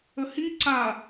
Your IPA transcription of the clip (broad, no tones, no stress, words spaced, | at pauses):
əhi ǀa